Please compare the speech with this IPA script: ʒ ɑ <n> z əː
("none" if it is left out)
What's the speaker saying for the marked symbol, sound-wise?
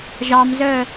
m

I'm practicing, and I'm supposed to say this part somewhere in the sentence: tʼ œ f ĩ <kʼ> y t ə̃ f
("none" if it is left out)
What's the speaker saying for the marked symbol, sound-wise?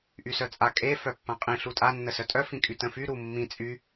kʼ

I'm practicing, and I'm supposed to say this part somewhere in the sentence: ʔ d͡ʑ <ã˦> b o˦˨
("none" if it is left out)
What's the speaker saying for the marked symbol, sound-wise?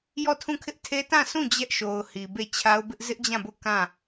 ã˦˨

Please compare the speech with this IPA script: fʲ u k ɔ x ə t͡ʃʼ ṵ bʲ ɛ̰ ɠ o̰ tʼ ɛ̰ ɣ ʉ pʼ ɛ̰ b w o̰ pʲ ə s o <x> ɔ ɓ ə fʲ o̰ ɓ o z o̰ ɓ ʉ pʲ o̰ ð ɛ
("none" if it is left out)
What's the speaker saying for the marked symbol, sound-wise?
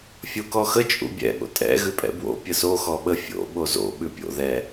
x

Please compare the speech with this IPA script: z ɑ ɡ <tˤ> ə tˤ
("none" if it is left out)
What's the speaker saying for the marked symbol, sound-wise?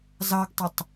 tˤ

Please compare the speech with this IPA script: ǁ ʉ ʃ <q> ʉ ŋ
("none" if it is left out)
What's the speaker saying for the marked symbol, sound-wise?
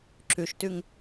t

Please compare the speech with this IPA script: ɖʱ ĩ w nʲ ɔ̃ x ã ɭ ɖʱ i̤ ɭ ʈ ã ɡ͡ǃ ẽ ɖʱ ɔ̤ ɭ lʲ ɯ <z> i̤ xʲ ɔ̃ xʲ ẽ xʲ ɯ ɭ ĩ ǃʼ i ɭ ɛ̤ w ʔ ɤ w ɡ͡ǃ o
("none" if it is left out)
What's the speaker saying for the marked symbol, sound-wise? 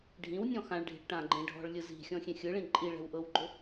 z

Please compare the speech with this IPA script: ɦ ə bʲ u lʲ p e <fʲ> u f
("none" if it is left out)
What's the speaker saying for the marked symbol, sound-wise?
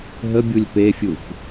fʲ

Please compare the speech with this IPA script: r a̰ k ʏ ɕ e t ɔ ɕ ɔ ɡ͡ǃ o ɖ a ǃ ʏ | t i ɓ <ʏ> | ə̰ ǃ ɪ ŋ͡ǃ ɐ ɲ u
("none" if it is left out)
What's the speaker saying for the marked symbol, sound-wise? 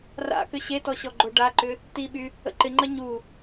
y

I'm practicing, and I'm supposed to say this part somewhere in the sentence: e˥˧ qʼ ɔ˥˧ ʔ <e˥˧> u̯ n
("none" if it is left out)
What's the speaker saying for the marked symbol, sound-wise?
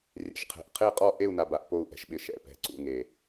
e˥˧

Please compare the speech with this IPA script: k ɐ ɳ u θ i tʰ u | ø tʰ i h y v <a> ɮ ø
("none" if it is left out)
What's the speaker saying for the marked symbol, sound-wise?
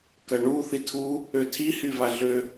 a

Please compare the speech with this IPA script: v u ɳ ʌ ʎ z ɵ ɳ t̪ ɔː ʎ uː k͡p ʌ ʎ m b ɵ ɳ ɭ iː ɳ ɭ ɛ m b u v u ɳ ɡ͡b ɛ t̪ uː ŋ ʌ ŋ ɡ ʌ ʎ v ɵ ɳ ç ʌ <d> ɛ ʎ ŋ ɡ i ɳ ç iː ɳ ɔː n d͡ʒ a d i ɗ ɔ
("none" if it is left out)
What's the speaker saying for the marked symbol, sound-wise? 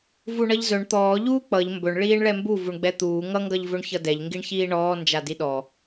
d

